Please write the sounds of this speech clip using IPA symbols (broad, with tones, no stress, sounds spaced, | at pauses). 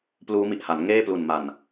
p l uː˦˥ m i˨˩ ʔ h a˩˦ n ŋ eː˥˩ p l u˨˩ n m a˨˩ n